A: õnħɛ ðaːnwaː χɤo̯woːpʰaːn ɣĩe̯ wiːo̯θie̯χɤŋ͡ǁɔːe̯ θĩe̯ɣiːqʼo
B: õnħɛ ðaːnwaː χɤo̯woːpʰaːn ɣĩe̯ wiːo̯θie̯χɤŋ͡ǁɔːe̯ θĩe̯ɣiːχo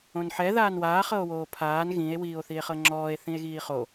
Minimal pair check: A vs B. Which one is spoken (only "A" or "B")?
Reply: B